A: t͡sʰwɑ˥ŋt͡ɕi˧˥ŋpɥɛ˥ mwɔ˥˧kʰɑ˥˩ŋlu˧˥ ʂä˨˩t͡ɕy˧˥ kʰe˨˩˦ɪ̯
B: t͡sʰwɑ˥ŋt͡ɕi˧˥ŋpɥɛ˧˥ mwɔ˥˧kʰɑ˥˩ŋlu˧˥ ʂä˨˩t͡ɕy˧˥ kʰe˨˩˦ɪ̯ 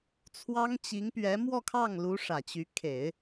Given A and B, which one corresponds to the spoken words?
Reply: B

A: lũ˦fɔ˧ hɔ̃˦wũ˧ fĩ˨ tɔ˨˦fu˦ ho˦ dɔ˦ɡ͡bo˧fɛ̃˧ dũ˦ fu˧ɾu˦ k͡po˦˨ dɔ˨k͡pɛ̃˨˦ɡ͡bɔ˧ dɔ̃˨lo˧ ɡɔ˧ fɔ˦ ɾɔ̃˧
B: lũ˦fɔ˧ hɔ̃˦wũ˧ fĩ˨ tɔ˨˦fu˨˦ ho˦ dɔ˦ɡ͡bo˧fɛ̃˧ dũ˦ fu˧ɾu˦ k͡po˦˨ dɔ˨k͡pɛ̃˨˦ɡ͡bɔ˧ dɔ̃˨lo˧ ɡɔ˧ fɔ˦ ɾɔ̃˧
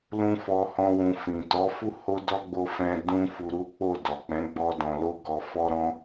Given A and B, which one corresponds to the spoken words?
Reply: A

